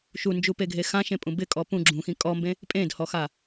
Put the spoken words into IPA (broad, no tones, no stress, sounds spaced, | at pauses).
ʃ u n d͡ʒ u p e ɡʱ e x ã ʃ ẽ pʼ ũ b ɪ kʼ ɔ p ũ ɡ͡ǁ ũ x ĩ kʼ ɔ m b ẽ | pʼ ẽ d h ɔ x a